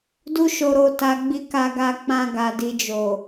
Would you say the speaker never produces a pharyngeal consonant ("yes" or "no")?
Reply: yes